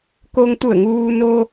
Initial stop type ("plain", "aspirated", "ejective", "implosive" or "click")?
plain